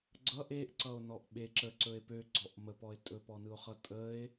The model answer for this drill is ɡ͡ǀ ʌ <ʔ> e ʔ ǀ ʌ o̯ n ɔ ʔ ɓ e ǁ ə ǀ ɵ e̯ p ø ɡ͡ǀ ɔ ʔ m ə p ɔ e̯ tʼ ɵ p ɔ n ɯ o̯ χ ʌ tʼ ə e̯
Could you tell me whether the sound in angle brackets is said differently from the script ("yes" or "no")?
no